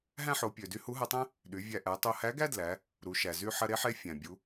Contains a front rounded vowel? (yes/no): yes